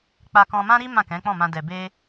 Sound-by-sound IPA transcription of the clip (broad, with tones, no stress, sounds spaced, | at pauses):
k͡p a˧ k ɔ̃˧ m ã˦ ɾ i˦ m ã˦˨ k ɛ̃˨˦ k͡p ɔ̃˦˨ m ã˧ d ɛ˨ b e˧